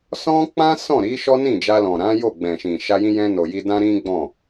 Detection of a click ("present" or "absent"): absent